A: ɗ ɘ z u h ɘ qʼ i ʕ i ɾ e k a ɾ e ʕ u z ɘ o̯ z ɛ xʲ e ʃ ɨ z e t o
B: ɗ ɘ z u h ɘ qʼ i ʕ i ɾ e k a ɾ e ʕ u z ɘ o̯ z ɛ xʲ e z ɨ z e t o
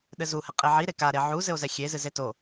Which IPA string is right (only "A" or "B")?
B